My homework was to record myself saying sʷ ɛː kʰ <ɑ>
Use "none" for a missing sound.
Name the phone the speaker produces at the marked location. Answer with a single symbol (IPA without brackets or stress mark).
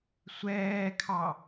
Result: ɑ